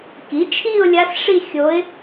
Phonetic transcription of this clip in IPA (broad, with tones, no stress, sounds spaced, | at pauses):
k i˩˥ t͡ʃʰ i˥˧ ʊ̯ lʲ a˧˥ s ʂ i˥˧ xʲ o˧˥ ɪ̯